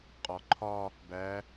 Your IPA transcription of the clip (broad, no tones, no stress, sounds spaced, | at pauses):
qʼ ɒ ǃʰ ɒ | b æ